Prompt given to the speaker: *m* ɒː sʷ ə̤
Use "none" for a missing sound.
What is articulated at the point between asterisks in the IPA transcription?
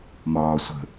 m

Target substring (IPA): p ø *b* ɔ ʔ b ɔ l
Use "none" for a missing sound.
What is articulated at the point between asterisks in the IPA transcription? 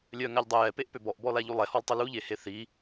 b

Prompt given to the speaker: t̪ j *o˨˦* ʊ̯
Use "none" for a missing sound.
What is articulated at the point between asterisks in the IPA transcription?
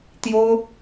o˦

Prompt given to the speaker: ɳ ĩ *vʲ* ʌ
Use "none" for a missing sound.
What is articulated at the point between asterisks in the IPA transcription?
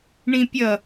pʲ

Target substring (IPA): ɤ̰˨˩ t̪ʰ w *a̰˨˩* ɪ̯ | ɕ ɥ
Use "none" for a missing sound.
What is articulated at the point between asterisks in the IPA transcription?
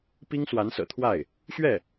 a˥˩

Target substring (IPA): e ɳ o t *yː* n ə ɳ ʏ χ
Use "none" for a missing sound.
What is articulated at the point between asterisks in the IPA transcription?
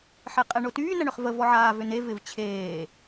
yː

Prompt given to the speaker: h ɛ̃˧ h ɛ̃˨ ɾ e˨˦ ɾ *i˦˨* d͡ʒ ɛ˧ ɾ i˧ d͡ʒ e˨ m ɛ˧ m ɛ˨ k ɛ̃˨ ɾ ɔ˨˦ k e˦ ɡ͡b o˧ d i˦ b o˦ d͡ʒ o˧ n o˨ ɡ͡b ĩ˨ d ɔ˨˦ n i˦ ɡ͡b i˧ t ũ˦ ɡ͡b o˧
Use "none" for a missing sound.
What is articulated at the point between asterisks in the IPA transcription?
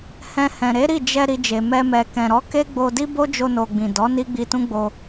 i˦˨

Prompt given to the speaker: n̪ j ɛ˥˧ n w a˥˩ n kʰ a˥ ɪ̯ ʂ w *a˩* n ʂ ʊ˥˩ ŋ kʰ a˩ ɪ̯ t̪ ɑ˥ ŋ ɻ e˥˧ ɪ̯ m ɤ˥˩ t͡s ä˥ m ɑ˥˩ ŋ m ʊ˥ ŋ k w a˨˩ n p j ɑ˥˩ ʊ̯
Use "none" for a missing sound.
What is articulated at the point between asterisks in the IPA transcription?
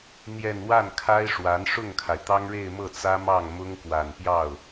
a˧˥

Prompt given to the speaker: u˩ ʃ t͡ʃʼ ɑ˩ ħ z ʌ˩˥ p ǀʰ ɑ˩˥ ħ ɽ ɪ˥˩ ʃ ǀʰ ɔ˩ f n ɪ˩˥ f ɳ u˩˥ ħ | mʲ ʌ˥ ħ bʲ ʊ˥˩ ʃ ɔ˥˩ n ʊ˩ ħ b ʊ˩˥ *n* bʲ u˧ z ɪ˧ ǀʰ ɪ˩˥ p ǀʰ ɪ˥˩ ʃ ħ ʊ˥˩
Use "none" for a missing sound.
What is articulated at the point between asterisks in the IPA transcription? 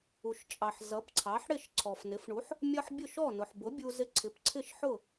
none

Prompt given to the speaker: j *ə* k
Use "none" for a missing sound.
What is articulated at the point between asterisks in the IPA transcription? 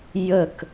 ə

